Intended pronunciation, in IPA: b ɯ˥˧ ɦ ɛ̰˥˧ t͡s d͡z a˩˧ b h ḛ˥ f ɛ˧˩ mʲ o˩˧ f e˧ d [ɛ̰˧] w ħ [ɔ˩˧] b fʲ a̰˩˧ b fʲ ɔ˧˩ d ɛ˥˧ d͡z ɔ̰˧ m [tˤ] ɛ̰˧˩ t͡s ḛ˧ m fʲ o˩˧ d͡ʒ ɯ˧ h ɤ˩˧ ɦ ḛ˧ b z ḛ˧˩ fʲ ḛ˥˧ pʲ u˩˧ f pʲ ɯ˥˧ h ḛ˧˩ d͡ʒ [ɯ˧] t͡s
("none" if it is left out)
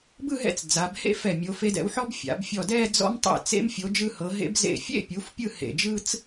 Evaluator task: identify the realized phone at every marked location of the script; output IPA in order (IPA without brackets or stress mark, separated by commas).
ɛ̰˧, ɔ˥, tˤ, ɯ˥